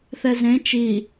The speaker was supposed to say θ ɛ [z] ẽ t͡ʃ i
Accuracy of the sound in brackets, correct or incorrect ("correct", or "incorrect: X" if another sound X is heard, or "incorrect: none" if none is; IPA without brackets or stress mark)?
correct